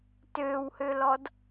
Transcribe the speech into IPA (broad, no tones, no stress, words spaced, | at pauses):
tøːwhølɔd